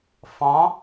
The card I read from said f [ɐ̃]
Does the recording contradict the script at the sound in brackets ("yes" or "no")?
yes